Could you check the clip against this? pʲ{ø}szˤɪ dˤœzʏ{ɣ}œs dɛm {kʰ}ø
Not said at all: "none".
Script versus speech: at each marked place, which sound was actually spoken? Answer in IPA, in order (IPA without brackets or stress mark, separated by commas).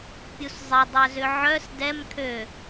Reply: u, ʕ, kʰ